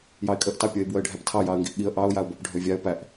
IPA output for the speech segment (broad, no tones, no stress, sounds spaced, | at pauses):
j ɑ ɪ̯ kʼ ə ʔ t ɑ pʲ ə ɪ̯ b w ə ɪ̯ ɖʱ æ p tʰ ɑ j ɑ ə̯ ŋ ɡ i ʔ ɠ i ə̯ ʔ ɑ ʊ̯ j a ʊ̯ b ɔ p ɖʱ ø vʲ a ə̯ p æ ʔ